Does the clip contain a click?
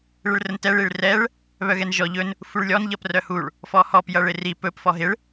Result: no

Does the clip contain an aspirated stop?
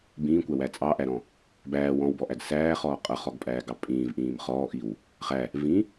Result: no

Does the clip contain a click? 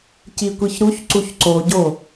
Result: yes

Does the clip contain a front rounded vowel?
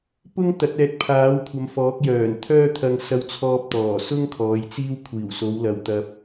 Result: yes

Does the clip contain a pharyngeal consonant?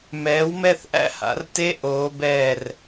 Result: no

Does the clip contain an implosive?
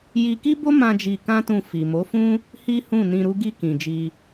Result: no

